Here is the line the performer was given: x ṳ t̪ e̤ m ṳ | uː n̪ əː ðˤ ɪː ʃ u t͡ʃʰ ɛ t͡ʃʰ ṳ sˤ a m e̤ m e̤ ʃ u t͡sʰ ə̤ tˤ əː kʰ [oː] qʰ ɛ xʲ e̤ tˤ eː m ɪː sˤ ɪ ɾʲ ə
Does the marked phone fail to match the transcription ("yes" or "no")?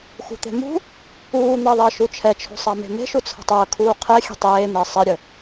yes